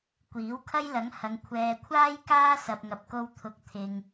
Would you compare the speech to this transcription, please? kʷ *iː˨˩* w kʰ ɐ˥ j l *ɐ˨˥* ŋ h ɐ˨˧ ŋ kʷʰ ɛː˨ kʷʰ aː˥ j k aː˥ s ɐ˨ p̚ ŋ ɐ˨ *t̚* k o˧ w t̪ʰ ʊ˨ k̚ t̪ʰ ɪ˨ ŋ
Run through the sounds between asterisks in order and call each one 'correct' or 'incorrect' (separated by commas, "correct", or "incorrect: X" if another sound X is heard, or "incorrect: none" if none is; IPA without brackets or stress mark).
incorrect: iː˨˥, correct, incorrect: p̚